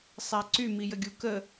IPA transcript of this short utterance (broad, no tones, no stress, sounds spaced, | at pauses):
sˤ ɛ ǀ y m i j ə ɡʲ u k ə